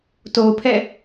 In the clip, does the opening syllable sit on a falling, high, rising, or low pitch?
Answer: low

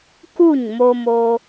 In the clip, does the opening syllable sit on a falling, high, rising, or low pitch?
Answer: falling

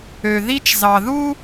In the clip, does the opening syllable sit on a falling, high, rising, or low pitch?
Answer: low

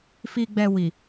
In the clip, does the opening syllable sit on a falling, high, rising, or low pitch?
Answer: low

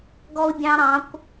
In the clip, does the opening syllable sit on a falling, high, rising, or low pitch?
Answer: high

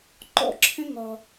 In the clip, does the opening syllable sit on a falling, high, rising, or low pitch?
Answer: high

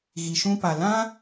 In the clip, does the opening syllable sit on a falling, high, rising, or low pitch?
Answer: low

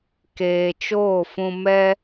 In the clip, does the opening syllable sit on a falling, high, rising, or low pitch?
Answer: low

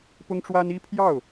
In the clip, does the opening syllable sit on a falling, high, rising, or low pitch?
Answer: high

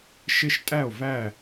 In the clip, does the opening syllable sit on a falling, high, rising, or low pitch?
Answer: falling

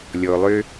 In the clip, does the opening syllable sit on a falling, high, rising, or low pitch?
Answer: low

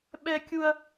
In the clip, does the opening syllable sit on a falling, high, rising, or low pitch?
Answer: high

